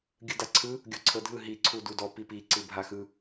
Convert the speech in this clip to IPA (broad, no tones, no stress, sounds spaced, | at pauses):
ɡʲ ɯ d a ǀʰ ɯ | ɡʲ ɔ ǀʰ ɤ dʱ ɯ ɦ i ǀʰ u d u d ɔ p i p i ǀ ɯ bʱ a x ɯ